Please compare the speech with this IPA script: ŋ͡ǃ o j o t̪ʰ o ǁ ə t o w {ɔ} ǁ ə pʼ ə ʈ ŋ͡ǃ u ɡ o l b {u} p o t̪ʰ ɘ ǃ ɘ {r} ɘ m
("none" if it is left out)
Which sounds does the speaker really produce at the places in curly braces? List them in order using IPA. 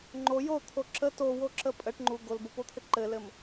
o, o, l

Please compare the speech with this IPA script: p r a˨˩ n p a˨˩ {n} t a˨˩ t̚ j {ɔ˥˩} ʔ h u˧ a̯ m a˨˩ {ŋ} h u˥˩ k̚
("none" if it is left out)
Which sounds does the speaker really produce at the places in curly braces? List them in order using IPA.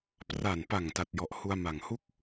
ŋ, ɔ˨˩, ŋ

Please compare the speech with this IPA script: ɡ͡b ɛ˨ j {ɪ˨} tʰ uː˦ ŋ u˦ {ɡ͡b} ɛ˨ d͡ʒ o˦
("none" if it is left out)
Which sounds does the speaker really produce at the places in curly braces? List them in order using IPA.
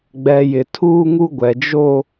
ɪ˨, ɡʷ

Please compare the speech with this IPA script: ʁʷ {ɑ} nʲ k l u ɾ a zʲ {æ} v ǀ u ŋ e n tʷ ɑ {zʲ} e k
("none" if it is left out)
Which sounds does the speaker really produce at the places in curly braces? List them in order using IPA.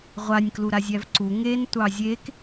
a, æ, zʲ

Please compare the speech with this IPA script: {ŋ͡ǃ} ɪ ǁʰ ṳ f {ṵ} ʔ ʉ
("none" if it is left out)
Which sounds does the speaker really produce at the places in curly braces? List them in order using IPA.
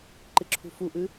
ǃ, u

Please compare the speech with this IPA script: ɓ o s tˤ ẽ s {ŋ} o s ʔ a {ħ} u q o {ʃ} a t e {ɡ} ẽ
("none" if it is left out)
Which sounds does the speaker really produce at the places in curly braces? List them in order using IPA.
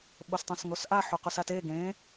ŋ, ħ, s, ɡ

